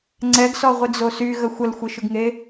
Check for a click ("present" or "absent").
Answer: present